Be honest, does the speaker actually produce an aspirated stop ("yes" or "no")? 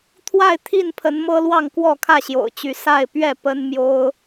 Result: yes